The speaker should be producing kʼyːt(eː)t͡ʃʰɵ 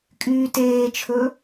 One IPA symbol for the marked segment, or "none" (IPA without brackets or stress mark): eː